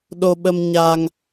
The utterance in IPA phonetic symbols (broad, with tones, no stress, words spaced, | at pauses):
ɗo˧ɓə˧mɲa˧ŋ